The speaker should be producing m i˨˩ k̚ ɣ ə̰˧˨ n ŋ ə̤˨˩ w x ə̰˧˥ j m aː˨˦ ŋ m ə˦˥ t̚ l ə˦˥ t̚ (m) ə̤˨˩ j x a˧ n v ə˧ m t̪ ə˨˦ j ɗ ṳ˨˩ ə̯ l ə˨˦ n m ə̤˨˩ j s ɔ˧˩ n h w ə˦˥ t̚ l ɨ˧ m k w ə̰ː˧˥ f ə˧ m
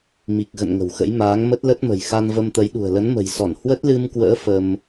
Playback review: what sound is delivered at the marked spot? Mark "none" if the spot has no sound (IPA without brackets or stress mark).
m